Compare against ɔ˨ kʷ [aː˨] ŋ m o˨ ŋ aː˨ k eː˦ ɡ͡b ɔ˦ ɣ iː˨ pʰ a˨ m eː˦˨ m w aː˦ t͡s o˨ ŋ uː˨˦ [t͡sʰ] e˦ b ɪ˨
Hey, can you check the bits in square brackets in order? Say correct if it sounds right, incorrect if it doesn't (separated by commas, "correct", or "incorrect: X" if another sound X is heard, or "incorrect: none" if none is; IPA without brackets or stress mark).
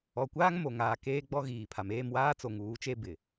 incorrect: aː˦, incorrect: t͡ʃ